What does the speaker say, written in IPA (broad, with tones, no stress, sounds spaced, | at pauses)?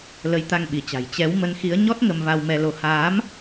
l ə˨˦ j t̪ a˧ ŋ ɓ i˧˩ t͡ɕ a̤˨˩ j t͡ɕ ɛ˨˦ w m ə˨˦ n x i˨˦ ə̯ ɲ ɔ˦˥ t̚ ŋ ə˧ m v a˧ w m ɛ˧ l o˨˦ h aː˨˦ m